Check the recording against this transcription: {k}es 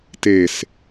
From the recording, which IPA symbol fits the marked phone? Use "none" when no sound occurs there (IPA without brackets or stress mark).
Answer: t